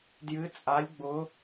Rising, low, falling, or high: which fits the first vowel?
rising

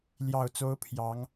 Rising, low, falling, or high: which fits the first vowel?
low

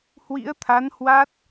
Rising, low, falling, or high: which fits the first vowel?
rising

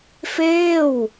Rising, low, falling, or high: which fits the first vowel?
falling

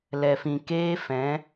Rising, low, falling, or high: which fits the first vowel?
low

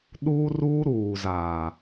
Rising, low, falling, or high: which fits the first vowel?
high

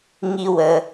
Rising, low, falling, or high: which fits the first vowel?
high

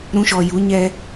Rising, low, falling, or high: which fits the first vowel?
high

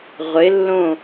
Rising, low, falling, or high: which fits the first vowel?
rising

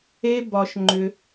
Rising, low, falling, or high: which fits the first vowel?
high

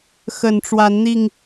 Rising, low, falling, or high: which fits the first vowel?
low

